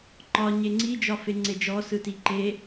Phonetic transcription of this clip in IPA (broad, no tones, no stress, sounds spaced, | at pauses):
ŋ͡ǃ ɒ ɲ e ŋ͡ǀ i d͡ʒ ɒ f e ŋ͡ǀ e d͡ʒ ɔ s ɯ t i ǃ e